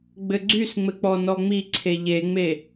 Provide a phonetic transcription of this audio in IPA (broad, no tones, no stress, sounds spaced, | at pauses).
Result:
ɡ͡b ɘ ɡ͡ǀ y s ŋ͡m ɘ k͡p ɔ n ɔ ŋ͡m i ǀʰ e ʎ e ŋ͡m e